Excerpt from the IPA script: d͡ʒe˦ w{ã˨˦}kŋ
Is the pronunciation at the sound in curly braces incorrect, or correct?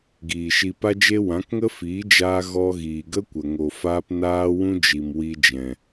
correct